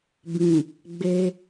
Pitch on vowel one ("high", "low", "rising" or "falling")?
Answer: low